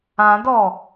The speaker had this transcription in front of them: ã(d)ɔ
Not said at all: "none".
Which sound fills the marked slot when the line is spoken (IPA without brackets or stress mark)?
d